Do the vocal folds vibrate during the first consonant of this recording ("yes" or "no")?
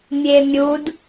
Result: yes